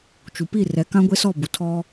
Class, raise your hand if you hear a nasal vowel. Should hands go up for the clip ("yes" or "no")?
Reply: yes